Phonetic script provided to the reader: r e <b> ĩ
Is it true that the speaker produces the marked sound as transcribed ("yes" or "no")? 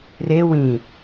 no